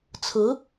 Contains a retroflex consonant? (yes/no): no